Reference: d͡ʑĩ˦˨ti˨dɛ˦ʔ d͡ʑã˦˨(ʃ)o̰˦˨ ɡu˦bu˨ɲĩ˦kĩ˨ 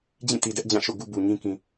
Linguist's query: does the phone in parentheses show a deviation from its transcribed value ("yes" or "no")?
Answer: no